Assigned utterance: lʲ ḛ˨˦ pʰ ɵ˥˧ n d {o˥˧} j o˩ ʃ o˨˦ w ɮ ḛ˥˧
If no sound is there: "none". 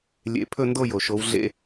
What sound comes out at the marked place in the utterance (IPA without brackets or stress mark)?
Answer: o˥˧